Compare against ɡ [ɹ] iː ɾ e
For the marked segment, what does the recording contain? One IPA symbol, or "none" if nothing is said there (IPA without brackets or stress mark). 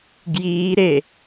j